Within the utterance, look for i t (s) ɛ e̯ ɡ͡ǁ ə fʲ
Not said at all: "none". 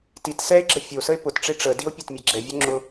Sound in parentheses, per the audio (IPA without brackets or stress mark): s